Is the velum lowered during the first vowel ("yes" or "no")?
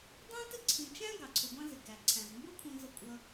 yes